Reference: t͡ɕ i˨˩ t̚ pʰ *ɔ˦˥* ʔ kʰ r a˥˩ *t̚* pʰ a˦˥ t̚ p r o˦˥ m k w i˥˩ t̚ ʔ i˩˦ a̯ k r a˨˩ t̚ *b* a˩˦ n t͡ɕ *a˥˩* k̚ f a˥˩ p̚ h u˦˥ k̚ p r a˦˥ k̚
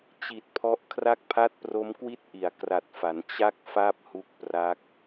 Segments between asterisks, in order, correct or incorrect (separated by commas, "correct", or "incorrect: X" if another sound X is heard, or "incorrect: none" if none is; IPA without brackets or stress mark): correct, incorrect: k̚, incorrect: f, correct